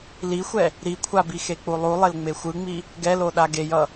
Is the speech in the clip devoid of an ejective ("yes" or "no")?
yes